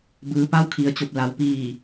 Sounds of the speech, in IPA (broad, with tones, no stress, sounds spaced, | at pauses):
b ɯː˩˧ p a˧˥ w kʰ i˩ ə̯ t͡ɕ o˧˩ p̚ l a˩˧ w p iː˧˩